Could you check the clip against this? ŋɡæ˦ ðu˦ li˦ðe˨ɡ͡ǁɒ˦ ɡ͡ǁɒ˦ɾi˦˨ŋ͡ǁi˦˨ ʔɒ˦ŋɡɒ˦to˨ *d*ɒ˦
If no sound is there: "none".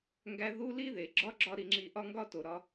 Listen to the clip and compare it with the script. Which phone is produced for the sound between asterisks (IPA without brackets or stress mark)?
ɾ